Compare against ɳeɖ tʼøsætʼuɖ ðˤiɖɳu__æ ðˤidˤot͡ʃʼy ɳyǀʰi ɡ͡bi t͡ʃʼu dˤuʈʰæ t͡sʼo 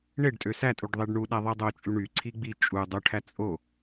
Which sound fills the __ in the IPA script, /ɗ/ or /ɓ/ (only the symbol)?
ɗ